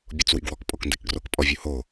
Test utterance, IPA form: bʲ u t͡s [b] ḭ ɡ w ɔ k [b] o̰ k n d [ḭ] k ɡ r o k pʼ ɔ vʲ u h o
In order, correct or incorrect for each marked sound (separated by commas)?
incorrect, incorrect, incorrect